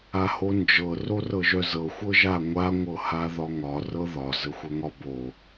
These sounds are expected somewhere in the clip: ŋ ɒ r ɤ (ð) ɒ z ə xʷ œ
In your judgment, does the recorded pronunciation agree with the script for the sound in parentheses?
yes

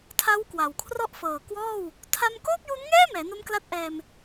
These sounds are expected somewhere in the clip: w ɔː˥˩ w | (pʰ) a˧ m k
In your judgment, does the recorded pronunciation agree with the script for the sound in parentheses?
no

